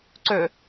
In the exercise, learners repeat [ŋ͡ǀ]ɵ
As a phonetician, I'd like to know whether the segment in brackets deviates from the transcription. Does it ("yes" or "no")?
yes